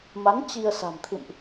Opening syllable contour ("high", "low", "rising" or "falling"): rising